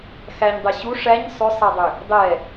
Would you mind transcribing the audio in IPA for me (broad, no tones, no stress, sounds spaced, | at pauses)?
x æ ɲ dˤ ɛ ɕ u ʂ æ ɲ sˤ ʏ sˤ æ dˤ ʏ | dˤ ɛ